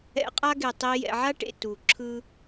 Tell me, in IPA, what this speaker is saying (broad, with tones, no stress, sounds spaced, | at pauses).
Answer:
ɛ̰˧ qʼ a˦ ɡ e˨ tˤ i˧ j ɛ̰˨ ʕ a˦ ʈ ḛ˨ t u˨ ǁʰ ɯ˦